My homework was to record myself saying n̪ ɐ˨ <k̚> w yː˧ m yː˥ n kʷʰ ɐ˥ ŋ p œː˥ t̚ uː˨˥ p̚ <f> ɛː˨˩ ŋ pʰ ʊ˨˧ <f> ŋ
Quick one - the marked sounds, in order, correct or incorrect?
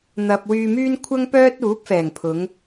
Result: incorrect, correct, incorrect

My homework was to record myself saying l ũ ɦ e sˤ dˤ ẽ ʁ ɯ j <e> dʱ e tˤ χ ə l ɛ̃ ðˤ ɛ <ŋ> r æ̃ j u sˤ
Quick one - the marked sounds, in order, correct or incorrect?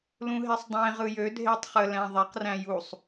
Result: incorrect, incorrect

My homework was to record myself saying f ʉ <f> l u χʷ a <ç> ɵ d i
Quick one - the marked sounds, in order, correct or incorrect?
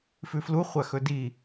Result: correct, incorrect

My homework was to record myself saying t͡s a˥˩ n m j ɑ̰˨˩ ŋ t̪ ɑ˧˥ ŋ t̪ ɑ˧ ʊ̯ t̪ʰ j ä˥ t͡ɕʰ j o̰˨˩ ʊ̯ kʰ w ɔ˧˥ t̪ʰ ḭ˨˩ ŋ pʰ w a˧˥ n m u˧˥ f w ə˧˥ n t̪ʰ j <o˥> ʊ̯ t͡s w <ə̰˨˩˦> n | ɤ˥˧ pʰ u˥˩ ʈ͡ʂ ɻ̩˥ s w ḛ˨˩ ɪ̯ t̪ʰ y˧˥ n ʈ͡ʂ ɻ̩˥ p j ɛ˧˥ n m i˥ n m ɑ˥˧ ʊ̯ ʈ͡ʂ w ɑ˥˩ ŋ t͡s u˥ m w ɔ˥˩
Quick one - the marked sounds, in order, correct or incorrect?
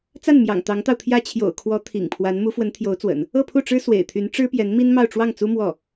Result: incorrect, correct

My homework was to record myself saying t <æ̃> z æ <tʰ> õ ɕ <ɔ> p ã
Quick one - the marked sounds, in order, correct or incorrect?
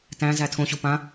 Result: correct, correct, incorrect

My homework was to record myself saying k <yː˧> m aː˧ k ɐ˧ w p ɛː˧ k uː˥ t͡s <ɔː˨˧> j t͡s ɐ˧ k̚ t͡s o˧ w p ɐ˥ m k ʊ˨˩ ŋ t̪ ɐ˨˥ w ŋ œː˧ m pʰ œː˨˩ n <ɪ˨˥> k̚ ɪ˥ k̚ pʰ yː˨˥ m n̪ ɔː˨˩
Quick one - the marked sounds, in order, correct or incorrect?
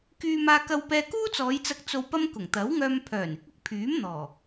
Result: correct, correct, correct

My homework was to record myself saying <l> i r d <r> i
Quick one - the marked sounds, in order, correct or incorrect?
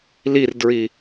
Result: correct, incorrect

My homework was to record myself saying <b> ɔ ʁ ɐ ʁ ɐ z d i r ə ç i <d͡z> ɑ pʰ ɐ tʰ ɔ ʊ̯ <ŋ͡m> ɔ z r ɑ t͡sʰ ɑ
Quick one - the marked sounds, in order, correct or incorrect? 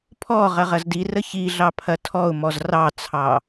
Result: incorrect, incorrect, incorrect

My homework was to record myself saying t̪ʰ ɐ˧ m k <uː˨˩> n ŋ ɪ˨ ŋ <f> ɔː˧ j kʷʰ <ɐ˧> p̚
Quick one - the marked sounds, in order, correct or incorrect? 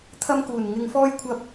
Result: correct, correct, correct

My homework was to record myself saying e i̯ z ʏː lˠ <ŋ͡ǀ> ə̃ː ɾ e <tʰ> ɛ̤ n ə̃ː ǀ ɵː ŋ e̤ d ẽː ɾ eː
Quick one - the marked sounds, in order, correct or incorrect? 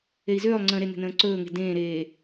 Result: correct, incorrect

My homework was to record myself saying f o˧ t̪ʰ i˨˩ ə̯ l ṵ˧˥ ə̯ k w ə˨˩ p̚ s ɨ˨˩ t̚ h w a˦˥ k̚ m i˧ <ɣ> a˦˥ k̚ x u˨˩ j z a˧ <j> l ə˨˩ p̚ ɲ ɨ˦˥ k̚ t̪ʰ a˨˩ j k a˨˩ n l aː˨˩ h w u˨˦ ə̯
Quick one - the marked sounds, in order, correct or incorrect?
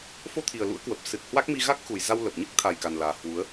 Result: correct, incorrect

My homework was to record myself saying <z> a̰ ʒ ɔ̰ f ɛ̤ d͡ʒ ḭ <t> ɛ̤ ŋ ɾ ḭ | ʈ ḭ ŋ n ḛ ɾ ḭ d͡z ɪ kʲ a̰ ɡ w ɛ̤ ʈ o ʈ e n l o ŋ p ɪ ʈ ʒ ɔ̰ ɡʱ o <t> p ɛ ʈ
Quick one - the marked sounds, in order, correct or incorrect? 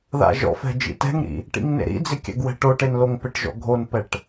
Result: incorrect, correct, incorrect

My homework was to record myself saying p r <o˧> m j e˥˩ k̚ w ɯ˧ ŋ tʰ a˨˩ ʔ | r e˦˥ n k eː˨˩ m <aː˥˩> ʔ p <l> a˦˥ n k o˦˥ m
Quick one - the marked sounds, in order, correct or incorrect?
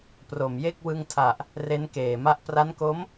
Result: incorrect, incorrect, incorrect

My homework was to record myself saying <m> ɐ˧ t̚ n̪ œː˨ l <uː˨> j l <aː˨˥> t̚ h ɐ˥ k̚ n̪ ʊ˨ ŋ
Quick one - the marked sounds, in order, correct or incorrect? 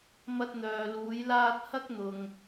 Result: correct, incorrect, incorrect

